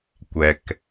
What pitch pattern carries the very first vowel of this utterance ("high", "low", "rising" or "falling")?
low